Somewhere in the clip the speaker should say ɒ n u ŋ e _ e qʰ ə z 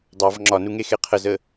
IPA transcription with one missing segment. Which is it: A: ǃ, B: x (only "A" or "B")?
B